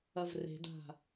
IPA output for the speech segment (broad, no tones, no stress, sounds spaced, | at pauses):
ɐ v r e̤ d a̤